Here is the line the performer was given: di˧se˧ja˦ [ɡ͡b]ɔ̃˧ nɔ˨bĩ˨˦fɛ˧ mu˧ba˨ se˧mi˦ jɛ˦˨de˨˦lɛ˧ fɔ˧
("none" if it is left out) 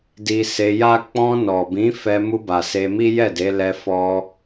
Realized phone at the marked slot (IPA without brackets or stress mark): k͡p